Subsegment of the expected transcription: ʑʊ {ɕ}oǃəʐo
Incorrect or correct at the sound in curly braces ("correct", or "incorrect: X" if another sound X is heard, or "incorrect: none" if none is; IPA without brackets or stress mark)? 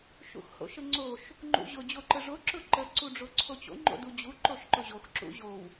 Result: incorrect: d͡ʑ